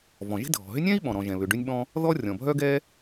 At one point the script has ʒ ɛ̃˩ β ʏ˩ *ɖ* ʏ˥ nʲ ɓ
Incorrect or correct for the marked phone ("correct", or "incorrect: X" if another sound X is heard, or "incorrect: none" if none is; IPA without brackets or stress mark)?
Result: correct